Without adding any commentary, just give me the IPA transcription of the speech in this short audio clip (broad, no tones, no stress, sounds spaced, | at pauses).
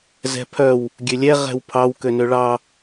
z ɛ̤ pʰ œ w | ɡʲ ø lʲ ɛ ʁ ɛ̤ w pʰ ɑ w k ø n ø ɭ ɑ